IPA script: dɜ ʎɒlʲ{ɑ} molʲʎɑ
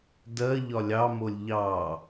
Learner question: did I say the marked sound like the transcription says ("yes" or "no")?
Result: yes